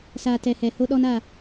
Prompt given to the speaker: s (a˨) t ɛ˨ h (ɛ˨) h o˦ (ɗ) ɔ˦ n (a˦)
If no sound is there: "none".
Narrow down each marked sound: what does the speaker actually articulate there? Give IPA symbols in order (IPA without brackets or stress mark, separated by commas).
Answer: a˨, ɛ˨, ɗ, a˦˨